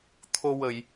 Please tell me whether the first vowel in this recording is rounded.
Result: yes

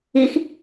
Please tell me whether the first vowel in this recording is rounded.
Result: no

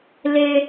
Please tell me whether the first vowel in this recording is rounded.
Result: no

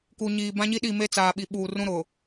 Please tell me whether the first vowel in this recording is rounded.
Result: yes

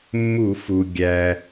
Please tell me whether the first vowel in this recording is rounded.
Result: yes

